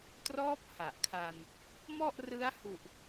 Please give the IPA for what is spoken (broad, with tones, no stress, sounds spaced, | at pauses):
t r ɔː˦˥ p̚ h a˨˩ ʔ kʰ a˧ n | m ɔ˥˩ ʔ r ɯ˦˥ a̯ h u˨˩ ʔ